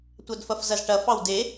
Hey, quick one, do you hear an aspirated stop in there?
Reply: no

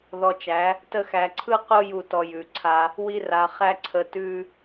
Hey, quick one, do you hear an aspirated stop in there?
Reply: yes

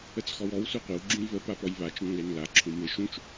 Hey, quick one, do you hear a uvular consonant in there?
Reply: yes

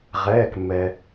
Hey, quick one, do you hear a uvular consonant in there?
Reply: yes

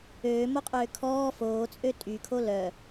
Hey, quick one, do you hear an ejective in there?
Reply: yes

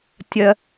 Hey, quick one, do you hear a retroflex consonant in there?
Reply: no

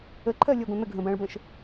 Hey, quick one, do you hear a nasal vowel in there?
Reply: yes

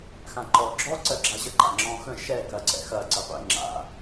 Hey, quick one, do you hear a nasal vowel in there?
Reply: yes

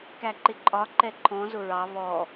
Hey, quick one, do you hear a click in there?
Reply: yes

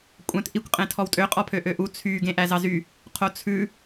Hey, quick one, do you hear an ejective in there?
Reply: yes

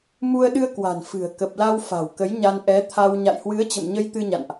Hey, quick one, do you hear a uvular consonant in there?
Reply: no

